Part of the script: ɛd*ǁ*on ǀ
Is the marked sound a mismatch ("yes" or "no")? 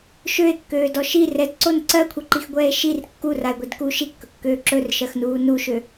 yes